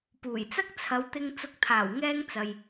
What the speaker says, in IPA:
p uː˨˩ j t͡s ɐ˥ k̚ t͡sʰ ɐ˨˧ w t̪ ɪ˧ ŋ t͡s ʊ˨˥ k̚ t̪ʰ aː˨˩ w ŋ ɛː˧ ŋ t͡s ɐ˨ j

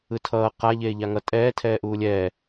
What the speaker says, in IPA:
ɯ tʰ ʌː q a ʎ eː ʎ a ŋ ʌ tʼ ɛː tʰ ɛː ʔ uː lʲ ɛː

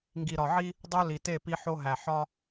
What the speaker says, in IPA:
ŋ ɡ i˨ ɾ ɒ˨ ʕ i˦ | dˤ o˦ l i˨ t e˦˨ p i˦ ħ o˦ ɦ æ˨ ħ ɒ˦

